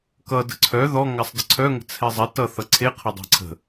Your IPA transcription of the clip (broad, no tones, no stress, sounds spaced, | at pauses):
k ʌ d ə̤ ǀʰ œ ð ɔ ŋ a sˤ d ə ǀʰ œ ŋ ə̤ t͡sʰ ɛ zˤ ɛ t ʌ θ ʌ ǀʰ e qʰ ʌ dˤ æ̤ ǀʰ ə̤